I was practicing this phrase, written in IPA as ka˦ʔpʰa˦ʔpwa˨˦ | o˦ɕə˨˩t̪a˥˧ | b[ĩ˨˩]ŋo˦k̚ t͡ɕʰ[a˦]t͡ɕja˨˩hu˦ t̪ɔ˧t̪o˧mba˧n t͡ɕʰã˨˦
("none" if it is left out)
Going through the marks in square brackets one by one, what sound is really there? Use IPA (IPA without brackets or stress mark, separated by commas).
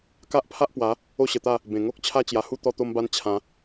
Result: ẽ˨˩, a˦